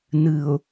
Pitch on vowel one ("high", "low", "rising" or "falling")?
low